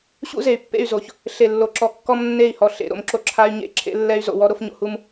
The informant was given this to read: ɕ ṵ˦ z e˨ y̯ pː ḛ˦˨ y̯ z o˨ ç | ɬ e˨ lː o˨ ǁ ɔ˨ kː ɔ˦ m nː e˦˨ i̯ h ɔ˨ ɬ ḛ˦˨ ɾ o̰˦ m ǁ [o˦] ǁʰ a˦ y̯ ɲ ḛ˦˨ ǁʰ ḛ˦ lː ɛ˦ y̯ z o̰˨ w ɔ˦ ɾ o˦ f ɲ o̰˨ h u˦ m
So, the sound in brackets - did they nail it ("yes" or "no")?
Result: yes